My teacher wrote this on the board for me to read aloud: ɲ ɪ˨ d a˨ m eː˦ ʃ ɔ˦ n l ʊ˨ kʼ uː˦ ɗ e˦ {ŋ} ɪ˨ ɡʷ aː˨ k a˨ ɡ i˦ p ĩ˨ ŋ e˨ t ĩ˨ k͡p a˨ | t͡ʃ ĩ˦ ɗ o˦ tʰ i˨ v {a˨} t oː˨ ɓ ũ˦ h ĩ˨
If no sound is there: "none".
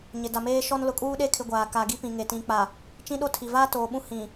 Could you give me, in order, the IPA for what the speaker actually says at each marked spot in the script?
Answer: kʰ, a˦

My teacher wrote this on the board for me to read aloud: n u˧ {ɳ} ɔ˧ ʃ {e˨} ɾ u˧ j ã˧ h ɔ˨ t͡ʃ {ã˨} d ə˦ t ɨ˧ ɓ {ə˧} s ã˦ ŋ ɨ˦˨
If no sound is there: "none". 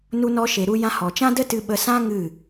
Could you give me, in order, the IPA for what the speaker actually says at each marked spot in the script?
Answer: n, e˨, ã˦, ə˧

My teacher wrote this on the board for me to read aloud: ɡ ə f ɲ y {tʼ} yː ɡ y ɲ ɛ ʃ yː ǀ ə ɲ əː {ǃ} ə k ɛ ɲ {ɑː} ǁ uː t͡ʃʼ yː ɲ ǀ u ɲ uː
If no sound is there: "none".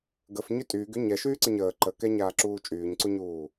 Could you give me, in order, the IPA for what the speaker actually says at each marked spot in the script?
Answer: tʼ, ǃ, aː

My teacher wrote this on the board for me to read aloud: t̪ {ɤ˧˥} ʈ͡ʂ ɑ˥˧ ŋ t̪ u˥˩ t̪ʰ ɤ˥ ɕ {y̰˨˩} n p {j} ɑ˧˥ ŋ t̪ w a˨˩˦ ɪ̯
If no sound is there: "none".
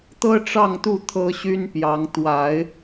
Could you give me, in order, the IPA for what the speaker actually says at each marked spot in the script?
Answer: ɤ˥, y˥, j

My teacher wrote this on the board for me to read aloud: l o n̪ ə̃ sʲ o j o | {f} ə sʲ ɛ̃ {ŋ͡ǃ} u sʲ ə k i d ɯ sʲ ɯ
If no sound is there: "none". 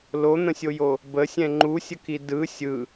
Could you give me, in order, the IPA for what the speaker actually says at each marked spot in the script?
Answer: b, ŋ͡ǃ

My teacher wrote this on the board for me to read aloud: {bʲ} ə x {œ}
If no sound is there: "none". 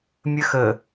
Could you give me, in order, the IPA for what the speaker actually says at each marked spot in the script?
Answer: mʲ, ə

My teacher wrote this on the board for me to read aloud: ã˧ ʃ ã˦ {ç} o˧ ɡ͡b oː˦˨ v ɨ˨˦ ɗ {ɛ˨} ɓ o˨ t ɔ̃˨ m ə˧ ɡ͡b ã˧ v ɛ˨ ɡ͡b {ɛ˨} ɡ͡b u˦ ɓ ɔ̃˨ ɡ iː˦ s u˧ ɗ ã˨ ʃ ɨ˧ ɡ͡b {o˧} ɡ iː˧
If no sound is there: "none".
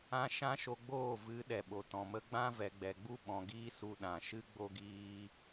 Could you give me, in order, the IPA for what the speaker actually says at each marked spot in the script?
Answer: ʃ, ɛ˨, ɛ˨, o˧

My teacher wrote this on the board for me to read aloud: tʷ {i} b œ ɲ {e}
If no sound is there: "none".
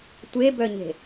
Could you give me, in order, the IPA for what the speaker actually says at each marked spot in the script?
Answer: e, e̤

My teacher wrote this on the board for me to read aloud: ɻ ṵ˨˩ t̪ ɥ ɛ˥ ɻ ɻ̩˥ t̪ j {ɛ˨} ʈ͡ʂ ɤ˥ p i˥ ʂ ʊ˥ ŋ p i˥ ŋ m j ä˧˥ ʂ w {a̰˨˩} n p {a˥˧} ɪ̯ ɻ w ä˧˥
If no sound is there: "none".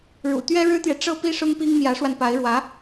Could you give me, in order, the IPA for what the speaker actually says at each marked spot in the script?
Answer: ɛ˨, a˧, a˧˥

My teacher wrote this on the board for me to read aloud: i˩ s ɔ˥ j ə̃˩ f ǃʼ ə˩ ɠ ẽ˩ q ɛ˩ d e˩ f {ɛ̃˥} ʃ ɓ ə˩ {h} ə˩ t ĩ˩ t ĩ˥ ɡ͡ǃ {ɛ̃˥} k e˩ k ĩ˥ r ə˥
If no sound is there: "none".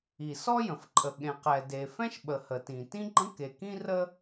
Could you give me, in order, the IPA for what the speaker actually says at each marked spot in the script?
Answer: ɛ̃˥, h, ə̃˥

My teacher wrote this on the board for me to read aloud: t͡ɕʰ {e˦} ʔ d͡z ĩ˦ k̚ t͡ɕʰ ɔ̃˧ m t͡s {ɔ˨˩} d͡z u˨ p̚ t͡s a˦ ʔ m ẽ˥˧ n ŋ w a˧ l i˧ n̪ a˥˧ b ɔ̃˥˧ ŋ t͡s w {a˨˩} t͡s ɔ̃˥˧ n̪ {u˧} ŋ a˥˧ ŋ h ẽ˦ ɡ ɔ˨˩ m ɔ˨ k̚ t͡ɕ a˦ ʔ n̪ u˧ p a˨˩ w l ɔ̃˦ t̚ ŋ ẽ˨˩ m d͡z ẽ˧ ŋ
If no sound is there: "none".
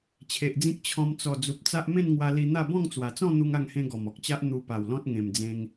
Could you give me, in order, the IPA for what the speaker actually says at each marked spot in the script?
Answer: e˨, ɔ˨˩, a˨˩, u˦

